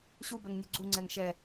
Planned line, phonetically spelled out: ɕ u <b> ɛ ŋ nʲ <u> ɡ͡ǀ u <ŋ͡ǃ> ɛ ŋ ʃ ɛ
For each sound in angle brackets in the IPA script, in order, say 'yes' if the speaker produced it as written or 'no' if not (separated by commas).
yes, yes, no